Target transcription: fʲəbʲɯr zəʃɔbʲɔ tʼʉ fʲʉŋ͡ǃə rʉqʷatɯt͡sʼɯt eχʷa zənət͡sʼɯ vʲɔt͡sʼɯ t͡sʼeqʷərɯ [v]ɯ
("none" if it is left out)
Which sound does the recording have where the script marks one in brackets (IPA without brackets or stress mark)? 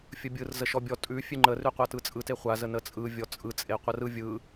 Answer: vʲ